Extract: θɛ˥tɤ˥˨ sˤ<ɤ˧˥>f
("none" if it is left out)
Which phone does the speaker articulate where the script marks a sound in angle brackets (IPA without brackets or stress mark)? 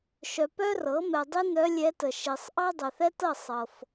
ɤ˨